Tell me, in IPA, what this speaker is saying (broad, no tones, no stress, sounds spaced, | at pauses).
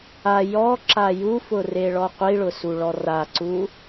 a j ɔ ǁ a j u f ʊ r e ɭ ɔ qʷ i ɭ ʊ s u ɭ ɔ r a ǀ u